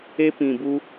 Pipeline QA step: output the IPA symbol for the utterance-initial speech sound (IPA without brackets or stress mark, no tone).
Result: e